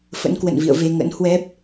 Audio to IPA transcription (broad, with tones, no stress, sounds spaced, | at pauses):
f ə̰˧˥ n k w ə̰˧˨ n v ḭ˧˨ ə̯ v e˧ ŋ ə̰˧˥ n h w ɛ˦˥ p̚